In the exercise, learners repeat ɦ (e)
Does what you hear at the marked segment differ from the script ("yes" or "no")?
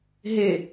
no